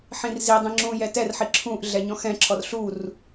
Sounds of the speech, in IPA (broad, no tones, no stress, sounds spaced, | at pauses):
ħ ĩ r z i dˤ ĩ ŋ͡ǁ ũ j ɛ t ɛ r ħ i ǁʰ ũ ʔ ɮ ɛ ɲ ɔ̃ x ɛ̃ ǁʰ ɔ r ɬ u r